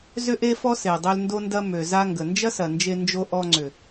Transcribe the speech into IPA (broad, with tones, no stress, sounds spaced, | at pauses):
z ʏ˦ ʔ e˦ f ɔ˦ s e˨ dˤ ø˦ l n d o˦ n d ɐ˦ m ø˨ z a˦ ŋ ɡ ə˨ n d͡ʒ ɐ˦ s ɐ˨ n d͡ʒ e˧ n d͡ʒ o˦ ʔ ɔ˧ ŋ͡ǀ ʏ˨